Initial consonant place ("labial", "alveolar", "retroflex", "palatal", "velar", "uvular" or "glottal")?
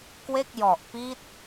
velar